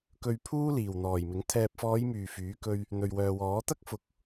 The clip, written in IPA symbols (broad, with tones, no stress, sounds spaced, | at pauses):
k ɵ˧ ɥ pʰ uː˥ l iː˨˩ w n̪ ɔː˨˩ j m ɪ˨˥ ŋ t̪ʰ ɛː˨ p̚ f ɔː˨˧ j m yː˨˩ f yː˨˥ k ɵ˧ ɥ | n̪ ɵ˨ ɥ w œː˨ w ɔː˨˥ t̪ ɐ˥ k̚ f ʊ˨˥ k̚